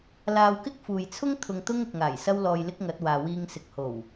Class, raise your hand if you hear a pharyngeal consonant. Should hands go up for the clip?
no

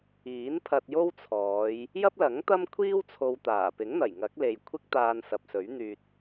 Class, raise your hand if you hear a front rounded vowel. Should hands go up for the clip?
yes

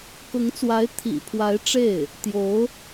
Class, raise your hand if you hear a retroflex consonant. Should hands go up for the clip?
yes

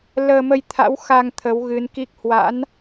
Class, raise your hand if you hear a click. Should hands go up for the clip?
no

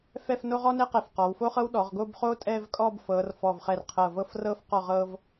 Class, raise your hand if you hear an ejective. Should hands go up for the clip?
yes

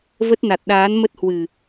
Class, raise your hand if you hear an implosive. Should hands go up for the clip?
yes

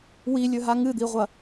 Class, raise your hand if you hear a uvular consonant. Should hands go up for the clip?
yes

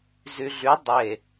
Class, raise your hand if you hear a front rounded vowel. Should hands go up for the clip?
yes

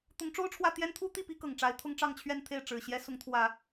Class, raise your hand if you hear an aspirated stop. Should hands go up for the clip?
yes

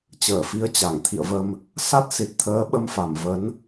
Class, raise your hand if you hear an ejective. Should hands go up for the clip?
no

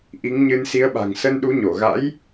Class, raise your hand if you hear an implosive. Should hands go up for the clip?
yes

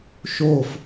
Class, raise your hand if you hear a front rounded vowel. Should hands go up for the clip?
no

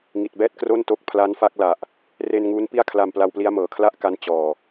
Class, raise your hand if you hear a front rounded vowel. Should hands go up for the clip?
no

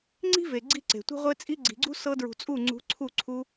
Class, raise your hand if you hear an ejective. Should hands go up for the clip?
yes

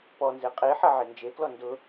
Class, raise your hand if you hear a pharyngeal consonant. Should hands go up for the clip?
yes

